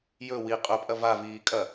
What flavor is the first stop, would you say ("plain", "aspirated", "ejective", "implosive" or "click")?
ejective